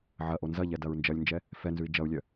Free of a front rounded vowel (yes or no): no